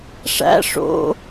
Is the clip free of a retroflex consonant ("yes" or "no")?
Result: no